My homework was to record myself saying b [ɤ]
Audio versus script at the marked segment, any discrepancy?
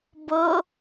no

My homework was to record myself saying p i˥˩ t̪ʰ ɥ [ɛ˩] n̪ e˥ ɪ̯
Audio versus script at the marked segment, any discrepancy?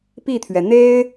no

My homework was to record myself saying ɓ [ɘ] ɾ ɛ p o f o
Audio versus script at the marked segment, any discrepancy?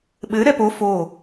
no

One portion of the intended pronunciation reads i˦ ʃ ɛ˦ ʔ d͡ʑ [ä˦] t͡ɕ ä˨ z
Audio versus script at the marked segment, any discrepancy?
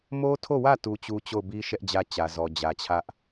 no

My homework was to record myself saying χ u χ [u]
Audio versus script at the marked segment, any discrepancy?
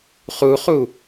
no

